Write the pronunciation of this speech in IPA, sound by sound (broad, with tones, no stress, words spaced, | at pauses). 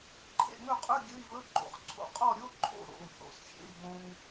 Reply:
ǃʰḛ˥˨ŋɵ˥˨qʼɵ˧˥˧ ɡʲɵ˧˥˧i̯vɵ˧˥˧ɡ͡ǃo̰˧χǀʰo̰˧ qʼɔ˥˨ɾʲo˧˥˧ǃʰo̰˥˨ ɾo̰˩˧˩u̯θo̰˩˧˩sxʲḛ˥˨i̯ ɡõ˧ŋ